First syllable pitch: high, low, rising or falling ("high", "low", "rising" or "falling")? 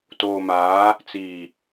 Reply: low